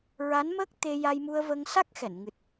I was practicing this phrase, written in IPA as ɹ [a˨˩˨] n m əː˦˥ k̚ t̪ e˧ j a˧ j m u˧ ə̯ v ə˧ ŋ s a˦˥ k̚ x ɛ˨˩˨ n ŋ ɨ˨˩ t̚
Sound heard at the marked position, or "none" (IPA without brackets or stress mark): a˧˥